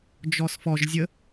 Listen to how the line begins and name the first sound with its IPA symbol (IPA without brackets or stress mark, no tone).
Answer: d͡ʒ